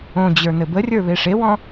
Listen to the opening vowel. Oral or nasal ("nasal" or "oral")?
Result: nasal